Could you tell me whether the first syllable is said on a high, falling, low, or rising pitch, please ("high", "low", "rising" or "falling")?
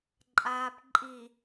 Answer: low